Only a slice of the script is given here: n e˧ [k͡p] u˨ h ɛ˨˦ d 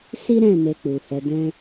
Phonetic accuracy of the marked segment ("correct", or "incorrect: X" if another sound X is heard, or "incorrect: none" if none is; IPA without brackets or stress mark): correct